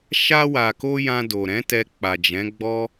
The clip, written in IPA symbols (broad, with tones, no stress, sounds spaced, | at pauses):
ʃ a˧ w a˨ k o˧ j ã˧ d o˨ ɾ ɛ̃˨˦ t ɛ˧ k͡p a˨ d͡ʒ ɛ̃˨˦ ɡ͡b ɔ˦